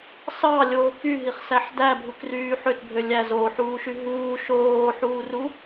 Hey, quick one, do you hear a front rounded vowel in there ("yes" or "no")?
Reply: yes